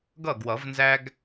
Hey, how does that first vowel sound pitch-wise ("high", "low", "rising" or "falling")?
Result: falling